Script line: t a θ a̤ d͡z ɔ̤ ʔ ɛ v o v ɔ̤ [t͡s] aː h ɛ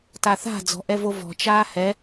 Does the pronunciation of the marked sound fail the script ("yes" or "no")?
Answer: yes